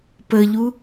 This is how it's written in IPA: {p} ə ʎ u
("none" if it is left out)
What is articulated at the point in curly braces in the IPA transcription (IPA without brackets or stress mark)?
p